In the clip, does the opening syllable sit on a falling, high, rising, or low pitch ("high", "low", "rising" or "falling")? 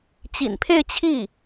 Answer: low